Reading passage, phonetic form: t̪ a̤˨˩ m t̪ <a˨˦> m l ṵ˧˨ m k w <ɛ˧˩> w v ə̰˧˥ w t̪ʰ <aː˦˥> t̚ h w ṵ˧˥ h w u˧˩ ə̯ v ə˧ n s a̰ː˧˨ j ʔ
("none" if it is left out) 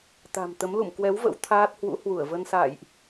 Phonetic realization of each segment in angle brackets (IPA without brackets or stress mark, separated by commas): ə˨˦, ɛ˨˦, aː˦˥